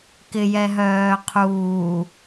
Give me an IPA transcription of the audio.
k ɪ j ɛ ɦ œː qʰ uː

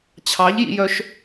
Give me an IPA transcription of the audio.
t͡ɕʰ ɑ ʎ j ḭ j œ ʃ

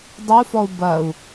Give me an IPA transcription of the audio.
dˤ ə u̯ f ɔ u̯ b ɐ u̯

